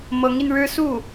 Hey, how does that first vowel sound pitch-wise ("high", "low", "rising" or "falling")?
rising